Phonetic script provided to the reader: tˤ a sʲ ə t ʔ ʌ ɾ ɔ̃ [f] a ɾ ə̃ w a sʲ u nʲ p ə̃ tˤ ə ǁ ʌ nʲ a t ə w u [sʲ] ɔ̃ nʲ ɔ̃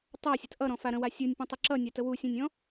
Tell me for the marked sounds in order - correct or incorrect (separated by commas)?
correct, correct